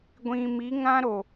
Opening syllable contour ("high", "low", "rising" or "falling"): low